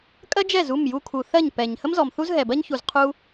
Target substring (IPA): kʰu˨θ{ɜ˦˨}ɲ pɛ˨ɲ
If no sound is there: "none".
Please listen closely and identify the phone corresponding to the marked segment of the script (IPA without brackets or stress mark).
ɜ˦˨